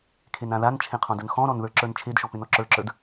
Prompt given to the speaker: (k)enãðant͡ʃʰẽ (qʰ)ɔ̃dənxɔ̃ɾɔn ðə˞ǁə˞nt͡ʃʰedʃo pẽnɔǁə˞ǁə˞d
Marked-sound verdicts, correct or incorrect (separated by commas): incorrect, correct